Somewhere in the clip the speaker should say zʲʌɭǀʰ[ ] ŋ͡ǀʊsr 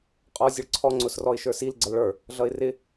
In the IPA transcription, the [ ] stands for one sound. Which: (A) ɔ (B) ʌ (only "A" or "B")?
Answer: A